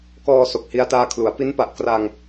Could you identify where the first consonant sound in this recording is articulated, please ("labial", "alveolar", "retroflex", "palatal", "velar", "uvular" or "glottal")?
velar